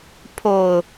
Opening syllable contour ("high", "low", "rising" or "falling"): low